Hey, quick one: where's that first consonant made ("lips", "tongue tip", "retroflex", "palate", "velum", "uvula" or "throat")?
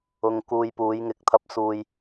velum